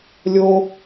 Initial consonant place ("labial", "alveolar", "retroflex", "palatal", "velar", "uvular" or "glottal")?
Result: alveolar